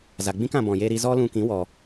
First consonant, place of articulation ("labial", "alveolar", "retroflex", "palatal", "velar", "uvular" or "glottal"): alveolar